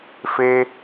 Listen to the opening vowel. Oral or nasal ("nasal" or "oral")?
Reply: oral